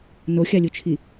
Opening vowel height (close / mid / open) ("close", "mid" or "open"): mid